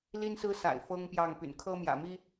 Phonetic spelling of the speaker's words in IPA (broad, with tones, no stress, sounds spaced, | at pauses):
l i˥ n s ɹ̩˥ s a̰˨˩ ɪ̯ f ɤ˥ ŋ p j ɑ˥˩ ŋ p y̰˨˩ n kʰ ɤ˥ m j ä̰˨˩ m i˥